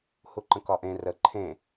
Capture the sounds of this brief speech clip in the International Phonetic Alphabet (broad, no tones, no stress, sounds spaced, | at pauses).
h u ǃ ə̃ k ɒ ʔ ẽ r ə ǃʰ ẽ